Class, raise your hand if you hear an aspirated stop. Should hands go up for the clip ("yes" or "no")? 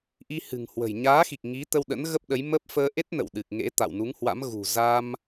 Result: no